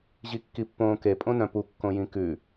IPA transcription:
ʑikːipːõːke pʼõnœ̃pu kːõjĩkʉ

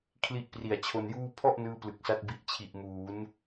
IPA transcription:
kʰli˥˩ʔpri˨˩a̯t͡ɕʰo˧njuː˥˩ pʰɔ˥˩ʔ nɯː˥˩plɯ˨˩k̚sa˥˩t̚ bi˨˩ʔt͡ɕʰi˨˩ʔmuː˩˦n

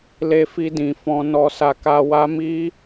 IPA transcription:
le˧fi˧dĩ˨ fɔ̃˧nɔ˧sa˧ka˧ wa˦ mi˦

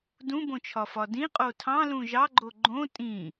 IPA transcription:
dũbõt͡ʃʰɒfɒ dĩqʼo tʰɑ̃lũ ʒɑɡ͡ǃo ɡ͡ǃõ tʼĩ

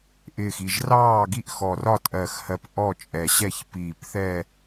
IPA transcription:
ʔɪː˨˩xi˨˩ʒrɑː˦˨ ɡi˦˨ʔxɔ˨˩rɒ˦˨ tʼɜ˨˩xhɜ˨˩p ʔɔ˦˨t͡ʃʼɛ˨˩ ɕɛ˦˨çpiː˨˩pθɛ˦˨

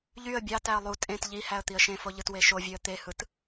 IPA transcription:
ʎyə̯ bʲɑtæə̯ lˠu tʼẽt ʎihæə̯ t̪iə̯ʃẽfo ʎɯtweʃovʲøə̯ t̪ehɯt

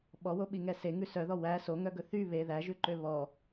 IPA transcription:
ɓɔwoɓiŋɛ seŋʉ sœðɔ wæ soŋœɡɵ θy βe ðæʒʉǃø βɔ

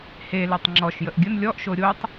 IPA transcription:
he letˤŋ͡ǁɔʃ jəʔɡʲən lʲɔʔʃo ɾʲotˤ

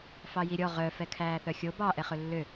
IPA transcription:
fɑjiɾʲɔ ʁœ fɛkʰæːθœxʲo bɑ ʔɛχɵlːø

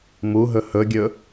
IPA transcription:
muɦɵ hɵɡʲɵ

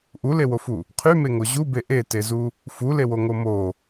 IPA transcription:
ʔulewofu | qʰymeŋo ʑube ʔetezu | fulewoŋo mo

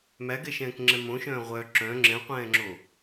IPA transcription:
mæɡɛʃɛ̃ːkŋ͡ǁɛ̃ mõʃœ̃ː ʁʷœ ǁœ̃ ŋ͡ǁɛ̃qʷɛ̃ːŋ͡ǁo

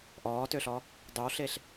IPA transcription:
ʔɔːtøɬɔ | dˤʉwɬeɬ

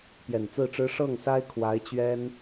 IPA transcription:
pjɛ˨˩nt͡sɹ̩˥˩ʈ͡ʂɻ̩˥ ʂɤ˥˩ŋsa˥ɪ̯ kʰwa˧˥ɪ̯t͡ɕɥɛ˥n

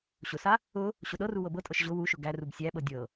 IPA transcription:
ɕʊsa | ʊ | ɕʊɗɤru wɤbɤtʼɤʃ ʑʊ wuʃʊ ɡærub sʲæɓɤ dʲɤ

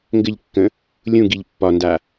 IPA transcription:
ŋɡɘʎkːə̃ | lʲũɡiʎ pːɒnda

